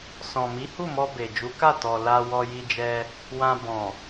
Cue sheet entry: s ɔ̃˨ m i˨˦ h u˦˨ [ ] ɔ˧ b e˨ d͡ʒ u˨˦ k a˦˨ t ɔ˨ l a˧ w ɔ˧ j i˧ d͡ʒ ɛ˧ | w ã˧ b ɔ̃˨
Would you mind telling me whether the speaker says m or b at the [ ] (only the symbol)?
m